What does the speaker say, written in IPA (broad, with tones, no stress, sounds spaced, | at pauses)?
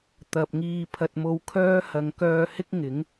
t̪ ɐ˨ p̚ ŋ iː˧ pʰ ɐ˧ t̚ m o˧ w kʰ œː˥ h ɐ˨˧ ŋ k œː˧ h ɪ˥ k̚ ŋ ɪ˨˥ ŋ